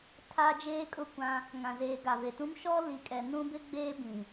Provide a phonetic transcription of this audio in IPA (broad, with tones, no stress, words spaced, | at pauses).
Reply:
tʰa˦ d͡ʒeː˦kʼʊ˦˨kʷã˦ | ŋã˨zeː˨ ɡa˨ve˨tũ˦m ʃɔ˦li˨kʼɛ˨ nũ˦bɪ˦ɡ͡beː˦ bĩ˨